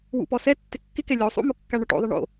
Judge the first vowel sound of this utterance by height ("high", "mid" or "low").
high